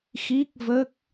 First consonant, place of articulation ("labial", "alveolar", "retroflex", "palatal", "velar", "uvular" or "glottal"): velar